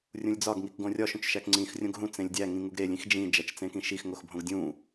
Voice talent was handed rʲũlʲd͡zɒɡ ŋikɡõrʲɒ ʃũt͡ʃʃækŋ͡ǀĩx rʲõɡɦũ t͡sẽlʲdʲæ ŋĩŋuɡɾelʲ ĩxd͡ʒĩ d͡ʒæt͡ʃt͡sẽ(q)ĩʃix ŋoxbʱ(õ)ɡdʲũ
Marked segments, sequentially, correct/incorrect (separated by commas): incorrect, correct